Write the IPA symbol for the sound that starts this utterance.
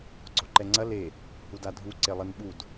ɡ͡ǀ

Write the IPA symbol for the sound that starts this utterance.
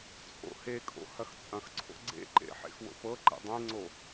t͡sʼ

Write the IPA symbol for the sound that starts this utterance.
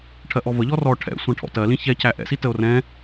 ʈʰ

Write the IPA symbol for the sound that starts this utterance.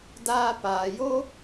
d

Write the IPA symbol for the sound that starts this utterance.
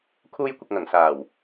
kʰ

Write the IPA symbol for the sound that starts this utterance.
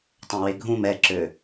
tˤ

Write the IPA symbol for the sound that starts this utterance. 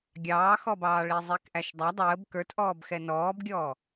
ɡʲ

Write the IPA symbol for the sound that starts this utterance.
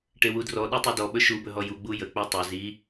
ʈ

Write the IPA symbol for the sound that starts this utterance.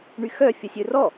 ɳ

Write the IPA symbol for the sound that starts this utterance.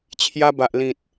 t͡ɕʰ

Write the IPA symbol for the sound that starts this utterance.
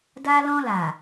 d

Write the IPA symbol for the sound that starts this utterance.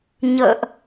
ɲ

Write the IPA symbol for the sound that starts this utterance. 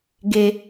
ɡ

